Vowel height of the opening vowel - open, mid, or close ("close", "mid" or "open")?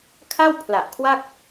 open